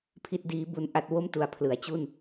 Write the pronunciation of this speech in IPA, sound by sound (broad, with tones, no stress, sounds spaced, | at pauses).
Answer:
pʰ i˦˥ t̚ d iː˦˥ b u˧ n ʔ a˥˩ t̚ w o˥˩ m t u˨˩ a̯ pʰ l ɯ˩˦ a̯ t͡ɕ u˥˩ n